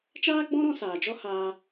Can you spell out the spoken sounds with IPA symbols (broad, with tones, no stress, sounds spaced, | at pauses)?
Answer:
t͡ʃ aː˦ ɡ͡b ɔ̃˦ ɾ ɔ̃˧ s aː˨ d͡ʒ ɔ˦ h aː˧